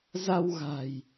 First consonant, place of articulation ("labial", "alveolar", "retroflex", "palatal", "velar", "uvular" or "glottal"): alveolar